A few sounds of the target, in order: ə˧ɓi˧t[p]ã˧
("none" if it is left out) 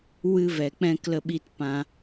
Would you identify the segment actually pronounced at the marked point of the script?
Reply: p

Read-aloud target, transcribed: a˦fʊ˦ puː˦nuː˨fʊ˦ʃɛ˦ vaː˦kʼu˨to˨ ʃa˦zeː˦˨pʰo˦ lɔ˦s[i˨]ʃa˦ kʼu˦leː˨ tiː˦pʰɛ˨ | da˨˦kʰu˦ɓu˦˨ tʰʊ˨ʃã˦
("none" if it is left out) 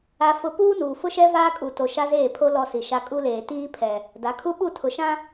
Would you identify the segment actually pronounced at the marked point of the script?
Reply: i˨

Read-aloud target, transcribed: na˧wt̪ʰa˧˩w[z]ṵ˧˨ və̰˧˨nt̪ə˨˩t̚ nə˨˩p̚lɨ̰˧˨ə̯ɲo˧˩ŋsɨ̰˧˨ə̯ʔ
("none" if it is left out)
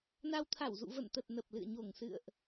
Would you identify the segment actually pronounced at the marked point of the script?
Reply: z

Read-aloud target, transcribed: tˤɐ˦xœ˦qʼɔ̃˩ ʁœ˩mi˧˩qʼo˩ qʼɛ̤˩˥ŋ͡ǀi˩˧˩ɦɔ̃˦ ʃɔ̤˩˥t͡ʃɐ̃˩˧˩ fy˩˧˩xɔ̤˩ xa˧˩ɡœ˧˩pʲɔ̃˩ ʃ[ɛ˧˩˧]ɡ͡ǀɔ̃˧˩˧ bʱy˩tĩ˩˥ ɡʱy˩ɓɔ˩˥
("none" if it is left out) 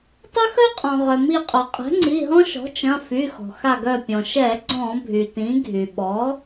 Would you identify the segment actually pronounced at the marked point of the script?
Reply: ɛ˧˩˧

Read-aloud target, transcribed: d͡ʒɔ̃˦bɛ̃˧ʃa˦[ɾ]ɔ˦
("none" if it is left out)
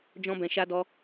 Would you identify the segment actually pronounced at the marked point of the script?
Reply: d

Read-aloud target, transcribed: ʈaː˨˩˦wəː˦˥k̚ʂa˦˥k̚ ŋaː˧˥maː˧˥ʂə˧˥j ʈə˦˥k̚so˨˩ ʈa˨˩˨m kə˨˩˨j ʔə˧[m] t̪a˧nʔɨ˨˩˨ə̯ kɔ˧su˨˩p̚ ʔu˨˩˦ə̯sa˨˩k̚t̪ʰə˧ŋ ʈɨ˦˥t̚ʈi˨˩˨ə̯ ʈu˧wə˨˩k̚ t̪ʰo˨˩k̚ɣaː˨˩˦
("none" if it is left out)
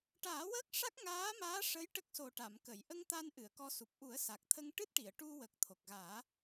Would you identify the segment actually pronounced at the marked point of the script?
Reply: ŋ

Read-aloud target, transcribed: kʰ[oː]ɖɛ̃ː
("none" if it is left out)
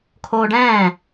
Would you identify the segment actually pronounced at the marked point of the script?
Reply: oː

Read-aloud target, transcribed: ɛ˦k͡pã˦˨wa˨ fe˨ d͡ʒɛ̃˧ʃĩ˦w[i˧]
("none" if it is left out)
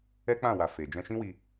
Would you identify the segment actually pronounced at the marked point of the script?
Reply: i˧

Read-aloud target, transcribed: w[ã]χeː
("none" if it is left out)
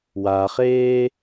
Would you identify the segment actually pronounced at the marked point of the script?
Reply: a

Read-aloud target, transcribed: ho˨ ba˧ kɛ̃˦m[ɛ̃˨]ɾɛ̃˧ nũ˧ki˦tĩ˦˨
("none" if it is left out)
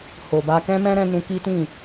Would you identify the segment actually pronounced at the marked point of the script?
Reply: ɛ̃˦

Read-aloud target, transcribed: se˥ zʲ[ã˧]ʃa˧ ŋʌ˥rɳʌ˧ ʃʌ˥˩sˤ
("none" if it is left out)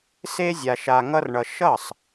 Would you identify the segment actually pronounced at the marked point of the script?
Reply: a˧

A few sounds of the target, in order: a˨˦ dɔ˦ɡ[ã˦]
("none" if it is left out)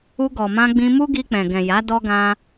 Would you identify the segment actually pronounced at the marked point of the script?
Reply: ã˦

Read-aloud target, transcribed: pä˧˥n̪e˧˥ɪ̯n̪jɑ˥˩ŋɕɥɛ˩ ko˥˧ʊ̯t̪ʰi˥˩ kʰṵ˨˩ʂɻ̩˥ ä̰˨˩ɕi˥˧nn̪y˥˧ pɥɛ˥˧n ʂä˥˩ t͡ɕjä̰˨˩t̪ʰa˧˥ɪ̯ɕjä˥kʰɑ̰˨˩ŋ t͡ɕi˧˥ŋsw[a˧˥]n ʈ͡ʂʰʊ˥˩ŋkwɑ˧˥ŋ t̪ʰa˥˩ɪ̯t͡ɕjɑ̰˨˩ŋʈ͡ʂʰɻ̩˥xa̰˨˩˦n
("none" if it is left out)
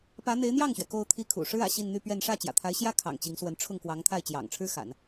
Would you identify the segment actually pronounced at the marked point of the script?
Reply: ə˧˥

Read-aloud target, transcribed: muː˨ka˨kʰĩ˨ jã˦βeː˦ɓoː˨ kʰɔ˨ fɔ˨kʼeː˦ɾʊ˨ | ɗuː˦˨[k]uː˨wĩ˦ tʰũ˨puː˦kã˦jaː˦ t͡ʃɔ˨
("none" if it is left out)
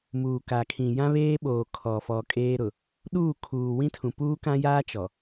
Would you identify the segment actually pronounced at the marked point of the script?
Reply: kʰ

